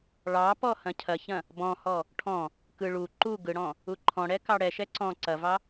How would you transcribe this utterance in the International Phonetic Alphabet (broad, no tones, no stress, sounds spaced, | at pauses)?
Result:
ɭ ɑ p ɔ h ɐ̃ cʰ ɐ ç ɐ̃ | b ɔ̃ h ɔ | ʈʰ ɔ̃ | k ɯ ɭ u ǃ u ɡ ɯ ɽ ɔ̃ | u ǃʰ ɔ̃ ɽ ɛ k ɑ ɽ ɛ ʃ ɛ ǀ ɔ̃ ǀ ɐ v ɑ